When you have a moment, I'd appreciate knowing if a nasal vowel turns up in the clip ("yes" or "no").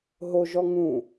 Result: yes